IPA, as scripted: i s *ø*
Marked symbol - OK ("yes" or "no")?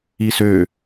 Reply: yes